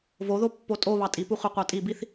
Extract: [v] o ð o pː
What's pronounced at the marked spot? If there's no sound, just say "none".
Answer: v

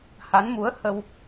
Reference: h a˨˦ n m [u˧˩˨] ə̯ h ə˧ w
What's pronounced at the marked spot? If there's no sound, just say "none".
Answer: u˨˦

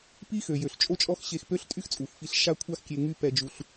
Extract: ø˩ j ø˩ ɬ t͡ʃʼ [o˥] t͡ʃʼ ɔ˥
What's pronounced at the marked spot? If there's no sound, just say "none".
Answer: o˥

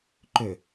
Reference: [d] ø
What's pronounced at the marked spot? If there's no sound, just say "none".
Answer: ǃ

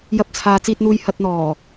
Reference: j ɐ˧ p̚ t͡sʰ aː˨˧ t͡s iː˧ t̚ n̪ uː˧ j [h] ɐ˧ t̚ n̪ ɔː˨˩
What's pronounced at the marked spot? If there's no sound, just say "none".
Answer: h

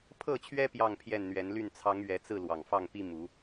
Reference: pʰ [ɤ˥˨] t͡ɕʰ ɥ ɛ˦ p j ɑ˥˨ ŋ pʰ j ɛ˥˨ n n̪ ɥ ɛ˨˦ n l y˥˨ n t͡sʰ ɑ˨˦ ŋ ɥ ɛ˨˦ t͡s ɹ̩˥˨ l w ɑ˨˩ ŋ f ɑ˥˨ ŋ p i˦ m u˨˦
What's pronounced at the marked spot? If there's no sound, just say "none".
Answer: ɤ˥˨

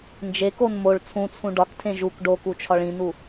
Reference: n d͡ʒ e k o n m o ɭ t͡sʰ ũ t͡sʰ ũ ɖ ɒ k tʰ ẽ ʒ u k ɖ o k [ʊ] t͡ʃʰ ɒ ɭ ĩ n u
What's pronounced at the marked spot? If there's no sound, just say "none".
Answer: u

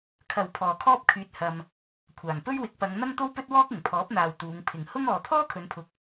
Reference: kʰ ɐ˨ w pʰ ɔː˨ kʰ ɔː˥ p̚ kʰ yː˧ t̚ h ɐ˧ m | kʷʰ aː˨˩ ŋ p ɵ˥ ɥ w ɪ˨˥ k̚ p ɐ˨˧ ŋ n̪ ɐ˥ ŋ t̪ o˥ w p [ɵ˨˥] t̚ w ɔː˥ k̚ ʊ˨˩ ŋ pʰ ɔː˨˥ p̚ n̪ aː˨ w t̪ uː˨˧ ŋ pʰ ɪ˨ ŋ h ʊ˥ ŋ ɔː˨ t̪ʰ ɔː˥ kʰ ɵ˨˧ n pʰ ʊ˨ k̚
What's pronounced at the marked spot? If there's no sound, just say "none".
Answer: ɵ˥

